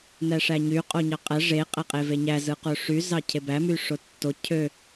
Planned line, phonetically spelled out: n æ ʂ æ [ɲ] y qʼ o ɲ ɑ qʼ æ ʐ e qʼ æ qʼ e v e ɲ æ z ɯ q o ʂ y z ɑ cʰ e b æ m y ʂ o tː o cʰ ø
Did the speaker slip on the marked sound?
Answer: no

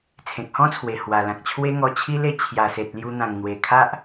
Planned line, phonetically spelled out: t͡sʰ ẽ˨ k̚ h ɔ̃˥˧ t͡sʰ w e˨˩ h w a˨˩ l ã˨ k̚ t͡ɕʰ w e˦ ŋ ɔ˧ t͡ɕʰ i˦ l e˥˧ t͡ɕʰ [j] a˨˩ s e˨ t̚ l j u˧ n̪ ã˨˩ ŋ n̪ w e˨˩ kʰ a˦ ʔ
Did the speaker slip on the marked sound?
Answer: no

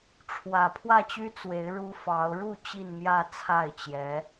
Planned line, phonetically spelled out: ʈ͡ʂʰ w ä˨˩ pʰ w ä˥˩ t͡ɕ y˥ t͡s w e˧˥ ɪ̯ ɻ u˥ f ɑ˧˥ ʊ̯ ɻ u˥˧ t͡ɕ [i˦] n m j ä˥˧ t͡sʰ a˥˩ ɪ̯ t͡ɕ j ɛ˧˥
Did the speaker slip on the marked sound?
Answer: yes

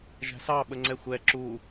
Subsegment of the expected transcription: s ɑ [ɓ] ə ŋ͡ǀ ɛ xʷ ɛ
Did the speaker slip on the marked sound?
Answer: no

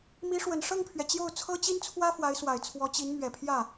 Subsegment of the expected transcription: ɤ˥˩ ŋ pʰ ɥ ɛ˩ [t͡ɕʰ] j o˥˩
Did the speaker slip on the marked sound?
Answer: yes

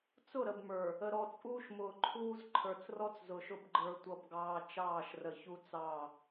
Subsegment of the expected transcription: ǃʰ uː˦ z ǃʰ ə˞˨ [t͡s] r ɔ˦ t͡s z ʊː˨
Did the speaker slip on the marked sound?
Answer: no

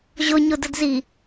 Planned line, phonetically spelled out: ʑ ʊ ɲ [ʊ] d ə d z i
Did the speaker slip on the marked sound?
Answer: no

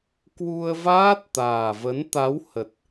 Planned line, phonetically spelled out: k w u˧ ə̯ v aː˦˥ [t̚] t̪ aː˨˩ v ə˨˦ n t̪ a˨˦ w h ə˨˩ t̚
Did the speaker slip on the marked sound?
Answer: no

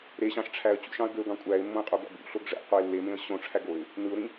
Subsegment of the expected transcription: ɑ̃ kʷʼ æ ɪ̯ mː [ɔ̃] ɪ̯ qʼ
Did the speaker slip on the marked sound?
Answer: yes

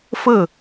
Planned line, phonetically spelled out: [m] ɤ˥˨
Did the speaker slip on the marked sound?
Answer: yes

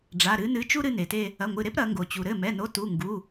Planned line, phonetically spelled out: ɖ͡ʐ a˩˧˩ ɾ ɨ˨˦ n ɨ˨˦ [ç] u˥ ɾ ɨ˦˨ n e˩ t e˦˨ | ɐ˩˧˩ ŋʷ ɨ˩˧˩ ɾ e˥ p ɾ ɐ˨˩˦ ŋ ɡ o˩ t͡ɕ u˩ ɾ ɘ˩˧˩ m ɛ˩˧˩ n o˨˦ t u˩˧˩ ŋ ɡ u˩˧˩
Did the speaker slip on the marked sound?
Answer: yes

